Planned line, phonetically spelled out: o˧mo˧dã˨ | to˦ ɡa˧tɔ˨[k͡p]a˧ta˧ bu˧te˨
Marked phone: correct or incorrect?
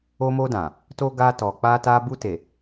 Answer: correct